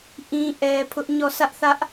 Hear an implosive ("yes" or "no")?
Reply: no